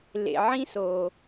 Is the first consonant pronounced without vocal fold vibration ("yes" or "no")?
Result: no